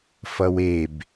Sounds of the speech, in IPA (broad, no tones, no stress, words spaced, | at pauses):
fʌweb